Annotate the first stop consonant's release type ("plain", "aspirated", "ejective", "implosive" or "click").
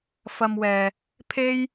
aspirated